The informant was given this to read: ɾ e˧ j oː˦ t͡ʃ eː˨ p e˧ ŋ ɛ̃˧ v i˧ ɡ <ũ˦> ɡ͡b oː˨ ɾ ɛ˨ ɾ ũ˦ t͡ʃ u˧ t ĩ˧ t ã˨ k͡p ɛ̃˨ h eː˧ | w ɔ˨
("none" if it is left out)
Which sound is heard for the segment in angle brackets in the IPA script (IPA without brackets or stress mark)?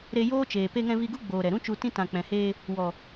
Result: u˦